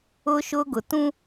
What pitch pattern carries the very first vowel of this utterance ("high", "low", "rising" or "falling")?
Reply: high